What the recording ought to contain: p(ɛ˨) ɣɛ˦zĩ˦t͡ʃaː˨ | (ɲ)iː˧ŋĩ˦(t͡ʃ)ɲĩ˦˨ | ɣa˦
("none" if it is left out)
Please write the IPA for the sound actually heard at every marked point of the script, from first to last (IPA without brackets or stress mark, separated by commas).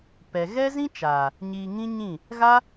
ɛ˨, ɲ, none